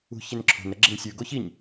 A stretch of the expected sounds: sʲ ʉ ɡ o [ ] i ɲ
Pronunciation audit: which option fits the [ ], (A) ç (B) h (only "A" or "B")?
A